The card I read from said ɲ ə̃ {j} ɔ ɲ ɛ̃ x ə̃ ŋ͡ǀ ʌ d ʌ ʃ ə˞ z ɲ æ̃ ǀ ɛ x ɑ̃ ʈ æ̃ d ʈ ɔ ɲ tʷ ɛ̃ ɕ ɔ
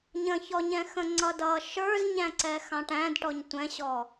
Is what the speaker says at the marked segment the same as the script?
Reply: no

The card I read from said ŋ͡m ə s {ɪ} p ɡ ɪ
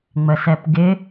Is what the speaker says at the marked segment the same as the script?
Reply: no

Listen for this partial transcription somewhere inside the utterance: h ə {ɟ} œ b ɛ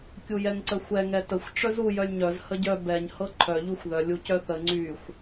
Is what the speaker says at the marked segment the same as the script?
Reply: yes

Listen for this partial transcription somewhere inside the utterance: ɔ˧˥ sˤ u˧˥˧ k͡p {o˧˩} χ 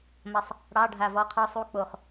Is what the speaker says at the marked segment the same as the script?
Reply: yes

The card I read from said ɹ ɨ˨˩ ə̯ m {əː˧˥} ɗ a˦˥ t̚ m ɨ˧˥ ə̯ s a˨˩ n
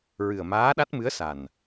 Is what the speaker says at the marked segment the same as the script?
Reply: no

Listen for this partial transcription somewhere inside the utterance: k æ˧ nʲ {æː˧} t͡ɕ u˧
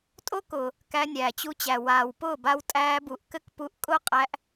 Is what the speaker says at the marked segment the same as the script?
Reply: no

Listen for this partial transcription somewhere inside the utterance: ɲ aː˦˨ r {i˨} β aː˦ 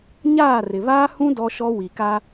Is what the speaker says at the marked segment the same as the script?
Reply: no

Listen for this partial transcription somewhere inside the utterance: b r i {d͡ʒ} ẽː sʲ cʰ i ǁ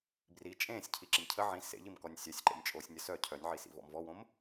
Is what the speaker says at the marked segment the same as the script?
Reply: no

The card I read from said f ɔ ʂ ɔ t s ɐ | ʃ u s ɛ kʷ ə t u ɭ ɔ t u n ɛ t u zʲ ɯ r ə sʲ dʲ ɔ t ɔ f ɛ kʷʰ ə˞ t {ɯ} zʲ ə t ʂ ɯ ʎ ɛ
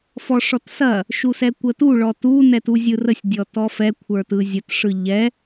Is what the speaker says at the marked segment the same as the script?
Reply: yes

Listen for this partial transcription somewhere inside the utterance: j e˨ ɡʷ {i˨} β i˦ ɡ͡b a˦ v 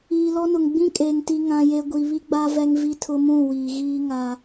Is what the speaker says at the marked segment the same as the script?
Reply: yes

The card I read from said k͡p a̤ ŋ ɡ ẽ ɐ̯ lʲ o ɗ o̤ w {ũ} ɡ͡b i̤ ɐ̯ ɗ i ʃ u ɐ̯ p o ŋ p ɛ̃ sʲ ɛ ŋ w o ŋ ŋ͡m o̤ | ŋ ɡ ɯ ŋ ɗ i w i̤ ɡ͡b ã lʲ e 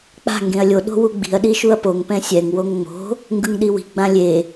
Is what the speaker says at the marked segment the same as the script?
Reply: no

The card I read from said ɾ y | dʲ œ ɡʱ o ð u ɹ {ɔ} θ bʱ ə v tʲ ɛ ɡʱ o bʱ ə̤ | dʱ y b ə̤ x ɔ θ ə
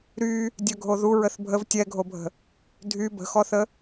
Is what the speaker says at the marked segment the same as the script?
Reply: no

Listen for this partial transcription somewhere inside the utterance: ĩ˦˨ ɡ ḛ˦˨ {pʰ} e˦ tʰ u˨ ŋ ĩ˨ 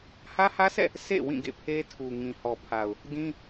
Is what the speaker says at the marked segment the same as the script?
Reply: yes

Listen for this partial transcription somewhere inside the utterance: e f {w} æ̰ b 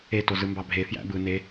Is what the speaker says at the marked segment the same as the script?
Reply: no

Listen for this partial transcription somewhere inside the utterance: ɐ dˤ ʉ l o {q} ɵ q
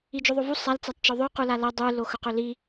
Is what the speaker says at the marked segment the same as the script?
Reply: no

